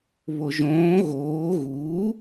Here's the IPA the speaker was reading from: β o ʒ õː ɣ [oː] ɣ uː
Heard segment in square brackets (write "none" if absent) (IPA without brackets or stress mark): oː